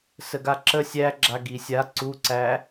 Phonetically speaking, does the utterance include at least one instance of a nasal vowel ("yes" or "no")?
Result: no